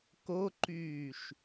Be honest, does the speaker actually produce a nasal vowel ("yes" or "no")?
no